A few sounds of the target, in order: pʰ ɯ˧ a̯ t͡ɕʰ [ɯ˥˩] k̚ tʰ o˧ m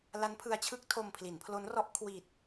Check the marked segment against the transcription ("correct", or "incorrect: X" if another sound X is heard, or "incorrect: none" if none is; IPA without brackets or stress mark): correct